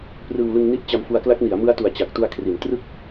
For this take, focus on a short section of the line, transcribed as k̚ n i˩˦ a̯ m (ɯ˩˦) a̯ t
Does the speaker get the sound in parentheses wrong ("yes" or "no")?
yes